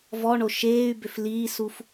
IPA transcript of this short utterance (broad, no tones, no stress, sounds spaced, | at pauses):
v ɔ ɳ o ʃ eː y̯ b ʏ f l iː s u f